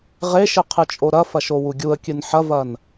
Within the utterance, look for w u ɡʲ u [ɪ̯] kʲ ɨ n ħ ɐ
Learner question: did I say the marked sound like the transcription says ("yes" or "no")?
no